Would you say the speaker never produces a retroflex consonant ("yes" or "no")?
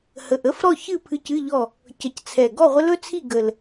yes